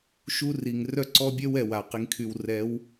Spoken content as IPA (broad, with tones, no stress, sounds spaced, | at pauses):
ʃ u˦ r i˨ ŋ r œ˦ ǀ ɔ˦ bʲ œ˦ w ɛ˨ w a˨ q i˨ ŋ kʰ y˨ w r ɛ˨˦ w